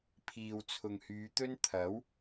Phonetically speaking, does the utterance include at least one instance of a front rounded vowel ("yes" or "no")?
yes